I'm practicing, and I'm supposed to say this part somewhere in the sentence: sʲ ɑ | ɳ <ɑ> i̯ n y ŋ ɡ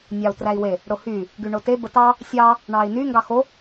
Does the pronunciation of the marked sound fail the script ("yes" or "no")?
no